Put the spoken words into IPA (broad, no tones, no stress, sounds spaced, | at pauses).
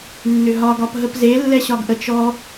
nː ʏ ɦ ɒ ɡ ɒ p ɦ ə p z e lː ɛ ɕ ɒ ɡ ʔ ə t͡ʃ ɔ